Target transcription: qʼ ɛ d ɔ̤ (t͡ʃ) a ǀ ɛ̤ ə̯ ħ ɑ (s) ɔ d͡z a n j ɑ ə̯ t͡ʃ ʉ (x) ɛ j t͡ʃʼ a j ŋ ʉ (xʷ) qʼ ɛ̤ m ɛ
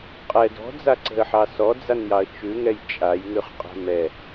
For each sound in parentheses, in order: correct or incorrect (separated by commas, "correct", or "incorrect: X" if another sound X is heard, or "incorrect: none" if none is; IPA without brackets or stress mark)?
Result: incorrect: d͡z, correct, incorrect: ŋ, incorrect: χ